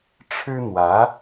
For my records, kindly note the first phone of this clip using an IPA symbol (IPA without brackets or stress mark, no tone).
ʈ͡ʂʰ